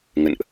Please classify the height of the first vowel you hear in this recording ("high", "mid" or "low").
mid